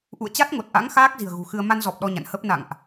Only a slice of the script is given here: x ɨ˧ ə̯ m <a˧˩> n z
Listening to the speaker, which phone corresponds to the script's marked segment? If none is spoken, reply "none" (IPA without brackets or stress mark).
a˧